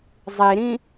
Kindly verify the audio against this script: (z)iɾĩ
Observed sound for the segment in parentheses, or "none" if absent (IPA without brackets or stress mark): zˤ